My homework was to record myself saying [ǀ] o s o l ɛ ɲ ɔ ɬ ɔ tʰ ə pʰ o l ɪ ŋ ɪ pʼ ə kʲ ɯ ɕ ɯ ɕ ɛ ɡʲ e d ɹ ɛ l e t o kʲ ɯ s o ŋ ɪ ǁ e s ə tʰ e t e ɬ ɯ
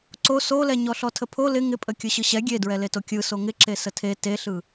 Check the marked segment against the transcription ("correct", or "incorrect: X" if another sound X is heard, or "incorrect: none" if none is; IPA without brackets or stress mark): correct